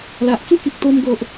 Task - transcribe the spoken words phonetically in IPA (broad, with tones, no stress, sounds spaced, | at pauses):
l a˨ ʔ t͡s u˦ k i˨ k̚ t̪ o˧ m ɡ o˨ ʔ